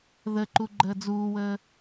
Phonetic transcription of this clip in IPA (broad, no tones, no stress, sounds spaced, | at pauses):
ð ə ǃ u ɡ͡ǃ əː d͡z uː w əː